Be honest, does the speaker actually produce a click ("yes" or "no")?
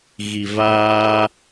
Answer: no